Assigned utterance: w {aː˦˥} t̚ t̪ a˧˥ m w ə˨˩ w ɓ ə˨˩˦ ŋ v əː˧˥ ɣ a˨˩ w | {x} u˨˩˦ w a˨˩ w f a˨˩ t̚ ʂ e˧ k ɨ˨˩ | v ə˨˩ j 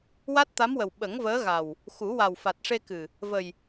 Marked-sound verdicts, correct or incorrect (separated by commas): incorrect, correct